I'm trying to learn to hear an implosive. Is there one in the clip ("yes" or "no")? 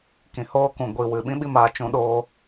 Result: yes